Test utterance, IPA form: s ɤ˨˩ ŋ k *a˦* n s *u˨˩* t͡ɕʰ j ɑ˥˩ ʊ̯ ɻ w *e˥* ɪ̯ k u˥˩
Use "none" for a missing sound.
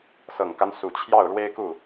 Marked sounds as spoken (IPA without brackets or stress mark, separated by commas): a˦, u˨˩, e˥